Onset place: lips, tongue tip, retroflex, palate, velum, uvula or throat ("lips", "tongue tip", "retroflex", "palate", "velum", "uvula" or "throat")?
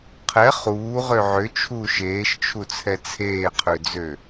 uvula